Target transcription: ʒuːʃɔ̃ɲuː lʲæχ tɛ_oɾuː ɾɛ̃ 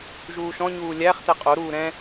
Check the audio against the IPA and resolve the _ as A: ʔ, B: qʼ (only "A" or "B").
B